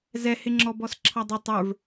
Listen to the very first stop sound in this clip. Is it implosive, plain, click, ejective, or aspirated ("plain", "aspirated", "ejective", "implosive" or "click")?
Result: click